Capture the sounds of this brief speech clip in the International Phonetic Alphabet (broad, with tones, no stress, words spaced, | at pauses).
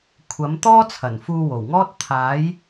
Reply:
kʷʰɐ˨˥m t̪ɔː˥t͡sʰɐ˨˩n fuː˧wo˨˩wŋɔː˥t̚ t̪ʰaː˨˥j